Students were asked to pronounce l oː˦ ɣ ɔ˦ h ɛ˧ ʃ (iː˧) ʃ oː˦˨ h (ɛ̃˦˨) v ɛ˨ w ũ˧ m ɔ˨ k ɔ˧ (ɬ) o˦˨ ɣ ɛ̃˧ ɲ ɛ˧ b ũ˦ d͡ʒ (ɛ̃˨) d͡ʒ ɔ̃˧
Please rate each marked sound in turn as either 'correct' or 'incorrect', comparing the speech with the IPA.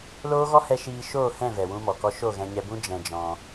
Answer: correct, correct, incorrect, incorrect

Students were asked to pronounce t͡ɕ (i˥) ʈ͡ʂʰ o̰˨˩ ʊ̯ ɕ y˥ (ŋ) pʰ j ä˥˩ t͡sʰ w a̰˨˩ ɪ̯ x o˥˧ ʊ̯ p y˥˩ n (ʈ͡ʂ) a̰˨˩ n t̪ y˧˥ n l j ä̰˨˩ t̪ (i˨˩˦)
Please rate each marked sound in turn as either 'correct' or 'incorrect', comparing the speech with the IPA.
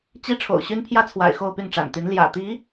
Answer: correct, incorrect, correct, incorrect

